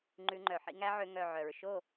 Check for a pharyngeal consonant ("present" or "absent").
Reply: present